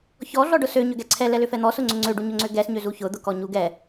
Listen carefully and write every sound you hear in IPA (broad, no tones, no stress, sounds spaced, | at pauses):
ç ɔ ɮ ɔ ɖ ʊ s ø ɲ ʏ ɡ ɛ ǀʰ ɛ l ɛ l ʏ f ɛ n̪ ɔ s ʊ ŋ͡ǀ ʏ ŋ͡ǀ ø ɖ u ɲ ʊ ŋ͡ǀ ø ɡ ɛ s ɲ ø z u ç ʊ d̪ ʊ k ɔ ɲ u ɡ ɛ